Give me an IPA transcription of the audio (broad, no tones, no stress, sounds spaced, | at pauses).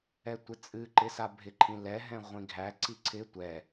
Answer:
ɛ tʷ ɪ t͡sʼ ɨ ǃ ɪ s a bʱ ɪ ǃʰ ĩ l ɛ ɦ ɛ̃ ʁʷ ĩ ɡʱ æ ǀ i ǀʰ ɪ tʷ ɛ